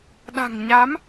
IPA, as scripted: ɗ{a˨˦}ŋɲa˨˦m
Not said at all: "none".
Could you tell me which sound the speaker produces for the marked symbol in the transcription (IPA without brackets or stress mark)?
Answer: a̤˨˩